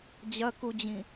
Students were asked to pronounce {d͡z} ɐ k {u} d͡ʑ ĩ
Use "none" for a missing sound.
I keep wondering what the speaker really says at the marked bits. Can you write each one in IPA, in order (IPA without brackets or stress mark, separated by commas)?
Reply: d͡ʑ, u